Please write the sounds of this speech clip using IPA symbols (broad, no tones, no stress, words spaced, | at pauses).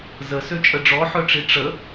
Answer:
zəsøt͡ʃʼə ɖ͡ʐɔħœʈ͡ʂi ʈ͡ʂə